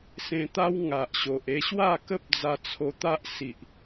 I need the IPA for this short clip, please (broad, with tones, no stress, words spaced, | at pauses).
sẽ˧t̪a˦wŋa˨ʔɕo˨ʔ e˧ɕwa˥˧kə˦p̚ d͡za˧t͡sʰo˧t̪a˦ʔ si˨ʔ